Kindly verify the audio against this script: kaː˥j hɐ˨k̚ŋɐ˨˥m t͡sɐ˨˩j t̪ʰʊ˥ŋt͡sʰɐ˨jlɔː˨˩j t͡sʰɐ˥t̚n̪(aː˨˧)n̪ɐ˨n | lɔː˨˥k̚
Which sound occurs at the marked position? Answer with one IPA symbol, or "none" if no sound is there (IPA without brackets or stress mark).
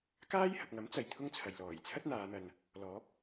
aː˨˧